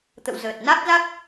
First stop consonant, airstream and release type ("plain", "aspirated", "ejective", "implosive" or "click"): plain